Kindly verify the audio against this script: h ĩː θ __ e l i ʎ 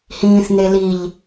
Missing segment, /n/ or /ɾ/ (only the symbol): n